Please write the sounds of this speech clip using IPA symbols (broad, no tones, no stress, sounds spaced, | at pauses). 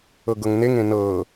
ɤ ɡ ɤ ŋ n e ŋ ẽ n ɤː